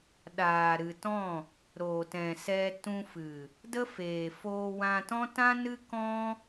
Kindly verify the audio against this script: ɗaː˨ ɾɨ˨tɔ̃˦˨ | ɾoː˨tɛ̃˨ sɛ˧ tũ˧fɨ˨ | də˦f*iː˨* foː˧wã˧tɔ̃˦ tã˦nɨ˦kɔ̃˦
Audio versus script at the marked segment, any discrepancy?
yes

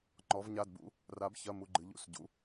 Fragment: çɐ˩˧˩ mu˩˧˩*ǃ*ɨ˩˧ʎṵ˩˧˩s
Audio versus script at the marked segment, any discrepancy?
yes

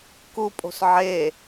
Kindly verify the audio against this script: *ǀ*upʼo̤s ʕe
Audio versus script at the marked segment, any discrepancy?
yes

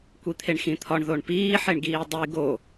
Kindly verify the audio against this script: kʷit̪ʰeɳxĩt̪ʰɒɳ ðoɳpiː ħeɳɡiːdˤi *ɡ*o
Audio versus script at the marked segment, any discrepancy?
no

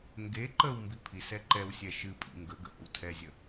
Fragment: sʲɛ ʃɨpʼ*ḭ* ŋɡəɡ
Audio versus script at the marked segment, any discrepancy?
no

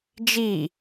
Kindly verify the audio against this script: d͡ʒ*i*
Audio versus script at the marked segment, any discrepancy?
no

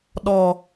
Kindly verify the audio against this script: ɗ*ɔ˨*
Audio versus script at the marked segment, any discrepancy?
no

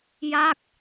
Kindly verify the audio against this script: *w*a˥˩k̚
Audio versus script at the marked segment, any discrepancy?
yes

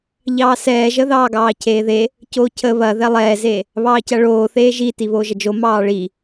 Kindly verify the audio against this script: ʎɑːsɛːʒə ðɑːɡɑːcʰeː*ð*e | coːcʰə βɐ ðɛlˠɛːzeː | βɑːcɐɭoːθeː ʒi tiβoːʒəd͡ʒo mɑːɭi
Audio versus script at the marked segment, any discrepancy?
no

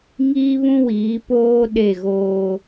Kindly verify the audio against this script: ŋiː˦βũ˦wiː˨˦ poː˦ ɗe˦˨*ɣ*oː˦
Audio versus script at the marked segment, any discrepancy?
no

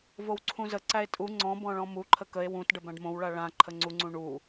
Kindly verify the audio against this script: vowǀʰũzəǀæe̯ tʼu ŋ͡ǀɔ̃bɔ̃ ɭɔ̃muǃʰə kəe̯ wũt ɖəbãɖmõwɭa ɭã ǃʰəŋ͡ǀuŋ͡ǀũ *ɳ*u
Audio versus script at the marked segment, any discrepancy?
no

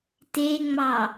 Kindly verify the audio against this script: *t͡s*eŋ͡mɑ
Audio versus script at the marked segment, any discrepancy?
yes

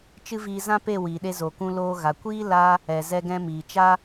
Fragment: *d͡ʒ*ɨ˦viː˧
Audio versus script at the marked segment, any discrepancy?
yes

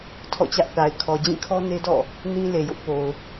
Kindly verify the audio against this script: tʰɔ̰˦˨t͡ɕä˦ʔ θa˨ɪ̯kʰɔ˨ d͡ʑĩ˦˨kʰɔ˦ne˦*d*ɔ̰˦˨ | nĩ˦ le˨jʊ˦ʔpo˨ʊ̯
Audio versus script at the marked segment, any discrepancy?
no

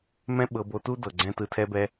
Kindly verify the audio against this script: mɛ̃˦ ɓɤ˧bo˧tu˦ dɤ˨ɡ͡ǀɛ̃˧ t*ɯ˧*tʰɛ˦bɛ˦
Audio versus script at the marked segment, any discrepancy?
no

